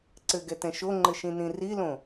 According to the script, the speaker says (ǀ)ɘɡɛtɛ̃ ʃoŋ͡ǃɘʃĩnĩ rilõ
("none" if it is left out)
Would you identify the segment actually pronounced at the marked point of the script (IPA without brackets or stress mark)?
ǀ